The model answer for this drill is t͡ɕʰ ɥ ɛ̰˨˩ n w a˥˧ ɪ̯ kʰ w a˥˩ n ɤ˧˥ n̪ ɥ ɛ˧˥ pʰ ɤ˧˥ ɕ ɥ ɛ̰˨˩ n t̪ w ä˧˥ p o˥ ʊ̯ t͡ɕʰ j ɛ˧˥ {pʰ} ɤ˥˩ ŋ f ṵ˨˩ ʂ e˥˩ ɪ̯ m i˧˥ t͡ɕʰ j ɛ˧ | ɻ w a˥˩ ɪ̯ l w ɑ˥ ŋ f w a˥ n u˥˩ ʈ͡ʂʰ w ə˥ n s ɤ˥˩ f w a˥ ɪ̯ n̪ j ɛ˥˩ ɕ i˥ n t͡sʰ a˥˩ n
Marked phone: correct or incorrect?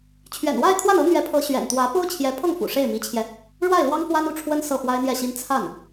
correct